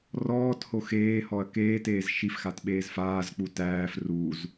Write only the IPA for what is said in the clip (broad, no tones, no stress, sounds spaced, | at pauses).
r ɔː t h o x eː h ɔ ɐ̯ k eː t eː z ʃ i f x a t ɓ eː z f aː z k͡p u t æː f r u z